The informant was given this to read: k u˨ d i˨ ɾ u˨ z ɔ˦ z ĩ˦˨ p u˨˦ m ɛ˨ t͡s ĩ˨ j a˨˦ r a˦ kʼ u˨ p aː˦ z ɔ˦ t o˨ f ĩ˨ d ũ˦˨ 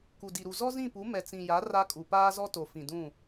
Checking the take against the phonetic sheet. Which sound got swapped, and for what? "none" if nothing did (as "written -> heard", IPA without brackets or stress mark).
none